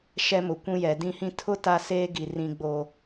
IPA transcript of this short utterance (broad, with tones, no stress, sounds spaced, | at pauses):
ʃ ɛ˦ m ʊ˨ kʷ ũ˦ j ɛ˨ d ĩ˦ h ĩ˦ tʰ ʊ˦ t a˦ s eː˦ ɡ i˨ r ĩ˨ ɡ͡b oː˨